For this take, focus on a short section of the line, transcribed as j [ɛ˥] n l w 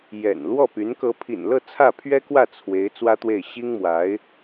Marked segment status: incorrect: ɛ̰˨˩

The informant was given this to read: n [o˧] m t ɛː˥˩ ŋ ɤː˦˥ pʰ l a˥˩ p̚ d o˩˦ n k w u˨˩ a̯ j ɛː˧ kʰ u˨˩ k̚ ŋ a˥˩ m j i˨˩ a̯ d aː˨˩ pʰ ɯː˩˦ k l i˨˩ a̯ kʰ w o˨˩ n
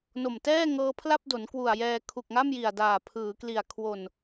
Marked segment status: incorrect: o˨˩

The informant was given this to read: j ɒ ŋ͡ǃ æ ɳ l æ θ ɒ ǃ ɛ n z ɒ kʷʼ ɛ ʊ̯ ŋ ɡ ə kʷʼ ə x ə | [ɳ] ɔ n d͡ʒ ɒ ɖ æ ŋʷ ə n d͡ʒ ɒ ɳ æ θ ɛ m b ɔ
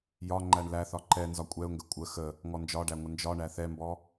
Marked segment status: incorrect: ŋ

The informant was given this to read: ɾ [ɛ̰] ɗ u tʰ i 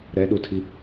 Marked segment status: incorrect: ɛ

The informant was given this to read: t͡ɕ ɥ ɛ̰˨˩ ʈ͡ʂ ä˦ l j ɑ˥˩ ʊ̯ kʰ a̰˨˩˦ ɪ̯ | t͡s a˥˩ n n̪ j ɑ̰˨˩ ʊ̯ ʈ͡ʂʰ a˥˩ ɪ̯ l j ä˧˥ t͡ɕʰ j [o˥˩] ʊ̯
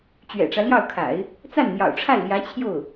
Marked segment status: correct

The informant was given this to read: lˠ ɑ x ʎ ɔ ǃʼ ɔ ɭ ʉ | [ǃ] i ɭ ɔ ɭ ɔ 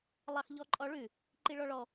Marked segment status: correct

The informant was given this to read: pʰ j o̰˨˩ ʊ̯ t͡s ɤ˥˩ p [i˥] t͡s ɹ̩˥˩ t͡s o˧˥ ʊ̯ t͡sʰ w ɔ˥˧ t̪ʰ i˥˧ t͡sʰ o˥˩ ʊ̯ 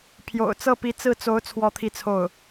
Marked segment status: incorrect: i˧˥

